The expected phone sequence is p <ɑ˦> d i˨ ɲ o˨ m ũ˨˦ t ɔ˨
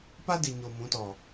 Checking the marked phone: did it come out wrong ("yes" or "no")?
yes